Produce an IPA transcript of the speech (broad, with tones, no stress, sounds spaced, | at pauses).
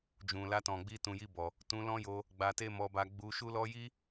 d͡ʒ ũ˨ l a˧ t ɔ̃˨ ɡ͡b i˧ t ũ˨ j i˧ b ɔ˨ | t ũ˧ l ɔ̃˦ j o˧ | ɡ͡b a˧ t e˦ m ɔ˧ b a˧ ɡ͡b u˧ ʃ u˦ l ɔ˦ j i˦